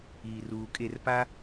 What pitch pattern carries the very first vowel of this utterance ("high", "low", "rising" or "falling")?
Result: low